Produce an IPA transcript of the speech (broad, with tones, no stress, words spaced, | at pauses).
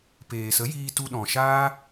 peː˨sə˨˦jiː˧ tu˧ɗɔ̃˨ ʃaː˦